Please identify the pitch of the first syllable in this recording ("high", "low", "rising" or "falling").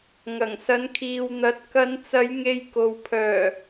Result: low